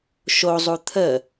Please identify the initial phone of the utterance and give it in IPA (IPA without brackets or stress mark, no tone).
ʃ